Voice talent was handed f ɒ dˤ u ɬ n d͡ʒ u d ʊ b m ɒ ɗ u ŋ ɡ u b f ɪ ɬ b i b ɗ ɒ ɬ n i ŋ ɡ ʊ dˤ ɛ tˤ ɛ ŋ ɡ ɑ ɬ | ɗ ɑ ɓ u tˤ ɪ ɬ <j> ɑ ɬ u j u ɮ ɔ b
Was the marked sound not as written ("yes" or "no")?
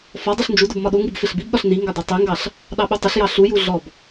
no